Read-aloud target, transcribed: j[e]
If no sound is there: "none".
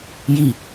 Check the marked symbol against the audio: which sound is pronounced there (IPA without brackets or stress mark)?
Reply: i